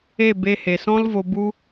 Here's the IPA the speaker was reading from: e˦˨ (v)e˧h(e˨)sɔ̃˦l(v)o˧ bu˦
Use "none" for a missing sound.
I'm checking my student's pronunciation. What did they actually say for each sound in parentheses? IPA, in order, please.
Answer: b, e˨, v

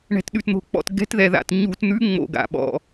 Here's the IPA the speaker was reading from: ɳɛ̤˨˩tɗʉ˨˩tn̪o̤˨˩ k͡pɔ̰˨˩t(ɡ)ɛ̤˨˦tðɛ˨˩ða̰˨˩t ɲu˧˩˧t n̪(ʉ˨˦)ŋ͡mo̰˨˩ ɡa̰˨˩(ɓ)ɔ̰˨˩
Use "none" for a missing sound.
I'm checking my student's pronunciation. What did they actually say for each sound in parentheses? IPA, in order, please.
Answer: ɡ, ʉ˨˦, ɓ

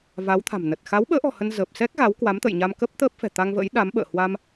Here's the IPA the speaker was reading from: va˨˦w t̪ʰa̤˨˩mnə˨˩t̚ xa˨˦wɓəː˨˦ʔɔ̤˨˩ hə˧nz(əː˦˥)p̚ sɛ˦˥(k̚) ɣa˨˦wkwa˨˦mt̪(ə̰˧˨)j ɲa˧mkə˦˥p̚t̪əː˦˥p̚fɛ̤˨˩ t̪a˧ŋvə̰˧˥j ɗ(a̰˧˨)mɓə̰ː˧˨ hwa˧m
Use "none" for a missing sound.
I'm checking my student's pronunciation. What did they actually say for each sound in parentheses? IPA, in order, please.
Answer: əː˨˩, k̚, ə̰˧˨, a˨˦

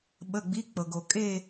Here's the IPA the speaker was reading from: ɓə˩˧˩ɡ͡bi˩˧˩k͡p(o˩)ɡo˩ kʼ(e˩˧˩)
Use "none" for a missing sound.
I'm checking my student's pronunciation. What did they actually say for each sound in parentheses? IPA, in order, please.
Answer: ɤ˩, e˦˨

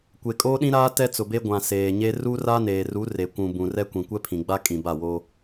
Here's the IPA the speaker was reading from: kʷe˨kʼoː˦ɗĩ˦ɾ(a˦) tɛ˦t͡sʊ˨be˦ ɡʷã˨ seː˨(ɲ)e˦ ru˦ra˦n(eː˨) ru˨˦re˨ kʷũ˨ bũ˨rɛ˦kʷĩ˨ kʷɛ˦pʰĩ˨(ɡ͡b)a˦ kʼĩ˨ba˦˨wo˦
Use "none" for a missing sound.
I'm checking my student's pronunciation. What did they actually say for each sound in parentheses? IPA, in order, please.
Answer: aː˦, ɲ, eː˨, ɡ͡b

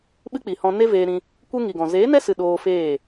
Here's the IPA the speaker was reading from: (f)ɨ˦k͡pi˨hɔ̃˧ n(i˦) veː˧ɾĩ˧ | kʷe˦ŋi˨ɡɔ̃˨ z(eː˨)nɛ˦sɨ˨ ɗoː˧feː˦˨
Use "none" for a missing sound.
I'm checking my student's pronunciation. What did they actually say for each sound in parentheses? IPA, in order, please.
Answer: ɓ, e˦, eː˨˦

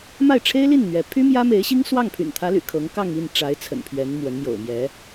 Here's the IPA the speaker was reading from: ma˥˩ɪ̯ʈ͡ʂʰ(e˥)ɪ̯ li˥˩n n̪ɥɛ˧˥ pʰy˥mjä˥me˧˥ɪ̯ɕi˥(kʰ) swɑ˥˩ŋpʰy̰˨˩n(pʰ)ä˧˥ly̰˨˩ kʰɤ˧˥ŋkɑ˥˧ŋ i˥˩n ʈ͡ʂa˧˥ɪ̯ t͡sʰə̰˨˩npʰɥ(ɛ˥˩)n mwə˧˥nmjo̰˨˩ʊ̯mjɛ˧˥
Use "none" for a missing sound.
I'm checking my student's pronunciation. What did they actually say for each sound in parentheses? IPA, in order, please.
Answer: e˥, ŋ, t̪ʰ, ɛ˧˥

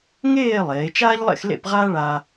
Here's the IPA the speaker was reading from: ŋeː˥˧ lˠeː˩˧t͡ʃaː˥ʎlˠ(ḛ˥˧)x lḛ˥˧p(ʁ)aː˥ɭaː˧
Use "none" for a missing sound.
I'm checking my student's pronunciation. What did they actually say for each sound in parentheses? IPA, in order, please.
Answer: ḛ˥˧, ʁ

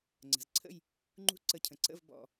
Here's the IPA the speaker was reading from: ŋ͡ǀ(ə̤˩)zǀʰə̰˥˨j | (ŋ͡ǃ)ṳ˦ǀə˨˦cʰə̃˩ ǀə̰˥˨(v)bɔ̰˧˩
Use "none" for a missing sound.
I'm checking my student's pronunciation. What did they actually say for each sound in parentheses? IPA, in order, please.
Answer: ə̤˩, ŋ͡ǃ, v

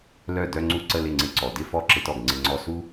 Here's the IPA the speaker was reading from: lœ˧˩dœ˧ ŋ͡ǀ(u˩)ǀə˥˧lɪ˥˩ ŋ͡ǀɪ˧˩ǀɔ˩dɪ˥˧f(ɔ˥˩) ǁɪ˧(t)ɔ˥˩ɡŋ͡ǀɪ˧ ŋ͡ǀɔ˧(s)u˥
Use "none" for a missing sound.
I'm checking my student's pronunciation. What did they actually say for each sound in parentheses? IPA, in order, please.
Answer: u˥˩, ɔ˥˩, t, s

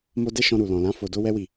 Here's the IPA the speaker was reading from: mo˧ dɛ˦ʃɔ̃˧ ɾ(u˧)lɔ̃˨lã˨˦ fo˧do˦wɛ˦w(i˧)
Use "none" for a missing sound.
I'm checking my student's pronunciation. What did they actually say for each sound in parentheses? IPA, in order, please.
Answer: u˨, i˦˨

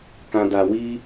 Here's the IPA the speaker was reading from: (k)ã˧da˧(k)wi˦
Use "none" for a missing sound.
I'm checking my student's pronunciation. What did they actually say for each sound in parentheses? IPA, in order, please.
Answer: k, none

